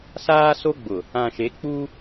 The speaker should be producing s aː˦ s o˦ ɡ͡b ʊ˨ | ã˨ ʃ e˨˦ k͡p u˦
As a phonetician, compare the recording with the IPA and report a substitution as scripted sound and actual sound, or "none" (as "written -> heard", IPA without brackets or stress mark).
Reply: none